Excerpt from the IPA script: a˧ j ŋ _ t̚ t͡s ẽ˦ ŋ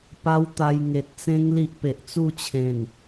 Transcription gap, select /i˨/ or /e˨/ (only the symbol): e˨